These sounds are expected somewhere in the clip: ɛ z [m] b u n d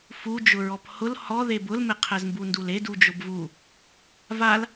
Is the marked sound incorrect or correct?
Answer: correct